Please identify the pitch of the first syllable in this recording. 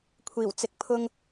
low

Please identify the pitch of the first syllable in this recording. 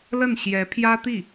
falling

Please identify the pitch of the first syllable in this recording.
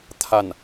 falling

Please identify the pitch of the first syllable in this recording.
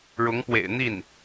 rising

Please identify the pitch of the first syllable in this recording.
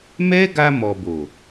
high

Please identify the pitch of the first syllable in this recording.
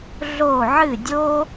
falling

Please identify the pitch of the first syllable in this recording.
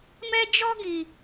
high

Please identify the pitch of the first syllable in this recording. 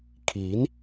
rising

